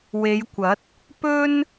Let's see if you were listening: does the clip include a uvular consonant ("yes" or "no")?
no